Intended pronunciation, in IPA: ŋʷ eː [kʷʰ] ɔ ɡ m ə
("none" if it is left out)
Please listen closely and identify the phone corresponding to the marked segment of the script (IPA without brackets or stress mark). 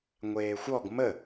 xʷ